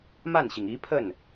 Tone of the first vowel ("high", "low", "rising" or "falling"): falling